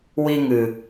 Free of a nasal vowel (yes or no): yes